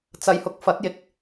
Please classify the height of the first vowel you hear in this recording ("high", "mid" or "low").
low